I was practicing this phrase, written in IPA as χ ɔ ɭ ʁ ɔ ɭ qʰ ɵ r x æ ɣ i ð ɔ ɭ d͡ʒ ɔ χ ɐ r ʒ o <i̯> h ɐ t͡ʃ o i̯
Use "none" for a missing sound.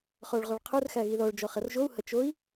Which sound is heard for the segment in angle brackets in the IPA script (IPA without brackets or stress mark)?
u̯